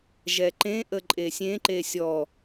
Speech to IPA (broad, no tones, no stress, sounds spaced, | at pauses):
ʒ ɛ ǃ ẽ ʔ ə ǃʼ e sʲ ẽ ǃ e sʲ ɔ